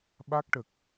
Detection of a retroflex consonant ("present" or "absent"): present